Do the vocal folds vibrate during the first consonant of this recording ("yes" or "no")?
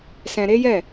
no